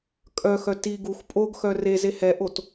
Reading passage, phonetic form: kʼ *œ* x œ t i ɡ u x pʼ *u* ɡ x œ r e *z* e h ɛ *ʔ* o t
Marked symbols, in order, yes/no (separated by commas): yes, no, yes, yes